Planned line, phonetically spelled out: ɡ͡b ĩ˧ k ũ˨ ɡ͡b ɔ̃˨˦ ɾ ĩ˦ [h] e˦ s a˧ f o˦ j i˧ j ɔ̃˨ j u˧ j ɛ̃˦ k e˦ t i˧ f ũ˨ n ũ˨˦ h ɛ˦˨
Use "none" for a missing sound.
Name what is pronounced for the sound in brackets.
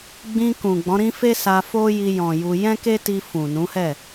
f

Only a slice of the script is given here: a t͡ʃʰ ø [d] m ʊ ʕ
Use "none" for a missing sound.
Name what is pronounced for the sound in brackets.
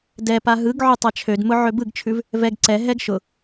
d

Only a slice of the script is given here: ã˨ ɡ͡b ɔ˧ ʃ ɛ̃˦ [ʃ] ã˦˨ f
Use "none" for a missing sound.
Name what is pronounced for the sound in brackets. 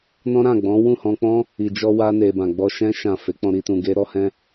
ʃ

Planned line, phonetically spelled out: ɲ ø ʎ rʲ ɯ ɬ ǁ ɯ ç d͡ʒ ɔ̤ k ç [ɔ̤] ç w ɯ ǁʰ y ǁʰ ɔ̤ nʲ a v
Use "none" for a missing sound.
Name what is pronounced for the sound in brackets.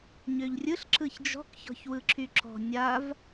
ɔ̤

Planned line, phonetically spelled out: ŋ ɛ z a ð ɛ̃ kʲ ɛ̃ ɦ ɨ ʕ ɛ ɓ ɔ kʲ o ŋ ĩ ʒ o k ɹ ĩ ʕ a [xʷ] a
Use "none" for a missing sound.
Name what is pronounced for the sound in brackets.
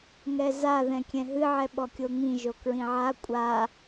kʷʼ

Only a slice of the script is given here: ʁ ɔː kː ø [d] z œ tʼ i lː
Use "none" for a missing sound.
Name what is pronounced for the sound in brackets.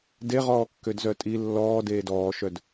d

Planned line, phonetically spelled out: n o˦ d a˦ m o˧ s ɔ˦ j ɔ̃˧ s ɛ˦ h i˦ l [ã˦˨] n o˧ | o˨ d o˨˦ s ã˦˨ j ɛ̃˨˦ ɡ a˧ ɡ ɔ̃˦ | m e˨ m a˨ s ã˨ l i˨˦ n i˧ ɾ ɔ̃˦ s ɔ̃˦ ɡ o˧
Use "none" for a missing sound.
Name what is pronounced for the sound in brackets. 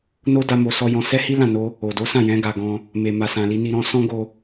ã˦˨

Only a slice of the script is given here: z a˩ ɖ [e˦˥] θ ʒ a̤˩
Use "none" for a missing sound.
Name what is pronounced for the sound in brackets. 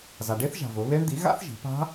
e˦˥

